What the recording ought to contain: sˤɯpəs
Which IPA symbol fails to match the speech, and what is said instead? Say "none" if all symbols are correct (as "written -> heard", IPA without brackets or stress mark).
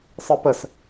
none